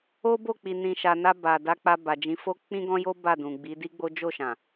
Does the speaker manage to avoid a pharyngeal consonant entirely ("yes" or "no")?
yes